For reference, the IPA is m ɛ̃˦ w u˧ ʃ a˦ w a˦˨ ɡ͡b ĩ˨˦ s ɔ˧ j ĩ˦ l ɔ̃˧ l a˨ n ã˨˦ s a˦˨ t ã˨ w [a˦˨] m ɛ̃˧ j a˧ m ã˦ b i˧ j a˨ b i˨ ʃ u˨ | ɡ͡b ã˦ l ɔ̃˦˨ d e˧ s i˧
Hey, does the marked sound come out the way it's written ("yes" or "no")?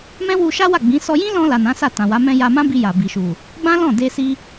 no